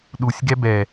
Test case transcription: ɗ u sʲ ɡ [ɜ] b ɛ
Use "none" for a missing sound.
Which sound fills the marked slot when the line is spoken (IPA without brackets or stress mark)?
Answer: ɛ